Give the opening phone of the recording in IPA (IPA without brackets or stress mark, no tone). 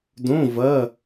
d